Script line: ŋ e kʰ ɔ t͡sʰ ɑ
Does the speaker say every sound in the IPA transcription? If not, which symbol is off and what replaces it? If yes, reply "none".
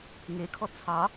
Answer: none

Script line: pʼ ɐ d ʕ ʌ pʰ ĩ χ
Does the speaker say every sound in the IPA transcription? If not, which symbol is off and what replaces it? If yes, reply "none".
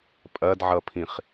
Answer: none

